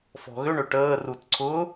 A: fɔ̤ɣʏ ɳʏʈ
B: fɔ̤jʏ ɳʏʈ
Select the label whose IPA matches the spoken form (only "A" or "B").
A